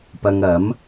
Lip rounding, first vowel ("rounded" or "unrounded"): unrounded